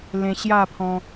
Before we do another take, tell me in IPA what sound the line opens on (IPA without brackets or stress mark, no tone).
l